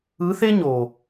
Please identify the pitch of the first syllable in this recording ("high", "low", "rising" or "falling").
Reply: rising